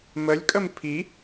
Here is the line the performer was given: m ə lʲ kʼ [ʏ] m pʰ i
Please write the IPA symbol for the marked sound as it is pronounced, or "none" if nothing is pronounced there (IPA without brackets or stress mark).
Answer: ə